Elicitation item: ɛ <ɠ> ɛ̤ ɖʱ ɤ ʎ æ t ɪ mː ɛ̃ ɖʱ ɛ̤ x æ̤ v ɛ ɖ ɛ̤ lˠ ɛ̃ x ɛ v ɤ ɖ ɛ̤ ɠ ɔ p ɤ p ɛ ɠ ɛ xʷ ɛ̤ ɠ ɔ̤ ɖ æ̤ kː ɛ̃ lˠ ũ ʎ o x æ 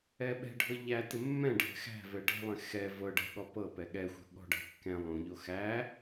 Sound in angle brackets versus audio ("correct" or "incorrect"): incorrect